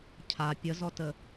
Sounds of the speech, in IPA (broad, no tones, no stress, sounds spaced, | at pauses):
cʰ a pʲ ə z ɔ t ə